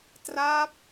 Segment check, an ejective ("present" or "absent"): absent